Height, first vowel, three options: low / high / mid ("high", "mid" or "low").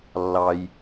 low